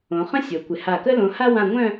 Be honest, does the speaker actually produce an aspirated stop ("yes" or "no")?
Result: no